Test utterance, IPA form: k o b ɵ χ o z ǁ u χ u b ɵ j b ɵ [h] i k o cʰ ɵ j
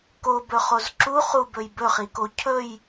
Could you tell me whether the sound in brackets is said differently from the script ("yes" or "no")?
yes